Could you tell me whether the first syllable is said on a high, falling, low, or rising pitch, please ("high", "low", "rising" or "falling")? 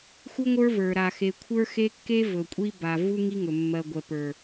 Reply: high